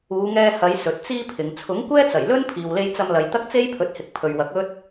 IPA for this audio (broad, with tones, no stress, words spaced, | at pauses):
uː˨˧ŋɛː˧hɐ˨˧j sɵ˨˥t̚t͡siː˥pʰɪ˨˧ŋ t͡sʰʊ˨˥ŋkʷɛː˥t͡sɐ˨˩jlɵ˥n pʰiː˨wle˧jt͡sɐ˧mlɐ˨j t̪ɐ˥k̚t͡se˥jpʰɵ˨˥t̚hɪ˨k̚ pʰɵ˨ɥwɐ˨˥k̚ ɵ˥t̚